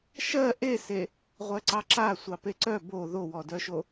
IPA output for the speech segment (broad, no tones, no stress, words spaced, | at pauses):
ʃɜ ʔese | ʁʷɜǀɑǁa sʷɑpeǀœ bo ðowɔdœʃo